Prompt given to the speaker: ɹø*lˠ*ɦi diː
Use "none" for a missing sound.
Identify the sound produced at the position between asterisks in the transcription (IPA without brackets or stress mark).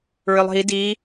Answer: lˠ